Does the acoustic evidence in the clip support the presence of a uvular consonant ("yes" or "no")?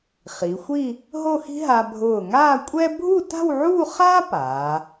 yes